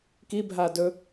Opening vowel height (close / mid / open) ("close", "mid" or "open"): close